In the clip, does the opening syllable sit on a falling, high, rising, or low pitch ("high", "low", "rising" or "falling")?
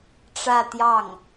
falling